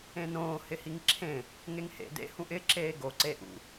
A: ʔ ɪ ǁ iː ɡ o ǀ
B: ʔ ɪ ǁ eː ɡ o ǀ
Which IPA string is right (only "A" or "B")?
B